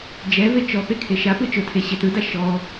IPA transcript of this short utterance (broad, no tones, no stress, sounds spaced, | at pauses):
d͡ʒ ɛ v e t͡ʃ ɔ p e kʰ e ʃ a p ɯ t͡ʃ ʊ tʰ e ɕ e t ɯ d a ʃ ɔ